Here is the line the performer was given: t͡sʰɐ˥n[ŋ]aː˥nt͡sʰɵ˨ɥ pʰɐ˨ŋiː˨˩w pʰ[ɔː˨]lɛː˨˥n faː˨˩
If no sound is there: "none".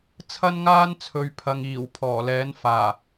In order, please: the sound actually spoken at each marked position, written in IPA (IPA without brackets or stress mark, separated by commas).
ŋ, ɔː˨˩